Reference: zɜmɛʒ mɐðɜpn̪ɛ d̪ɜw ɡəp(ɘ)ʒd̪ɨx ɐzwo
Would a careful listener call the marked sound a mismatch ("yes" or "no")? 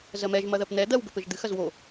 no